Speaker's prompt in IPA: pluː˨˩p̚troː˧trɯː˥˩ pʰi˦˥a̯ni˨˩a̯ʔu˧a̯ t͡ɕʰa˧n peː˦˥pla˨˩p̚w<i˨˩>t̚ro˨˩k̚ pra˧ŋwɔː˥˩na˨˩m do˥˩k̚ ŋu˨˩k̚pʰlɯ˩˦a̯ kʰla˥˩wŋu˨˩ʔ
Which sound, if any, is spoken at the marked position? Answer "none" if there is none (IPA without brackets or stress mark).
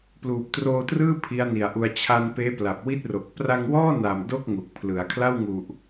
i˥˩